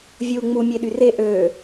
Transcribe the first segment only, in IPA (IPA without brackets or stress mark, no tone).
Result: vʲ